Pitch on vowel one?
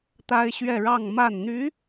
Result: high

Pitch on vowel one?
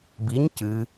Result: rising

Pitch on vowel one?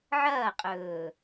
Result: falling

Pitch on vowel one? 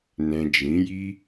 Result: low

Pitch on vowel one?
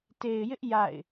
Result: low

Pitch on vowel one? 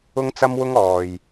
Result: high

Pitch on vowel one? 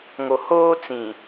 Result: low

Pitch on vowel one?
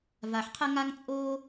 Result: low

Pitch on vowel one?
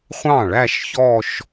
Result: falling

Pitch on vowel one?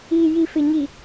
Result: low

